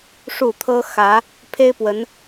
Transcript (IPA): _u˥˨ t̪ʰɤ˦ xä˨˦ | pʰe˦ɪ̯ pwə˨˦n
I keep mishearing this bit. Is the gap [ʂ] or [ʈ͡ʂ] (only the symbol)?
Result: ʂ